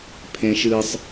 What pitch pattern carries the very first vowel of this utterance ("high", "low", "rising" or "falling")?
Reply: high